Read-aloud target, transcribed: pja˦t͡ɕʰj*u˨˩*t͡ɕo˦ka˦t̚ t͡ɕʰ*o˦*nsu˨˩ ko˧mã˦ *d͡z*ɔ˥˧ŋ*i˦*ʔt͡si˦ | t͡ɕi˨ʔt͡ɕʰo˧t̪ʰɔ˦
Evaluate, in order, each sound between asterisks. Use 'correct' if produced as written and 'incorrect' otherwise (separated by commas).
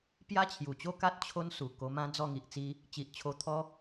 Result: correct, correct, correct, incorrect